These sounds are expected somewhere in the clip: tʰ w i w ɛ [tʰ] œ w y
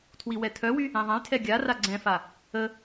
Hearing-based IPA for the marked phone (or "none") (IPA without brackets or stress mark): tʰ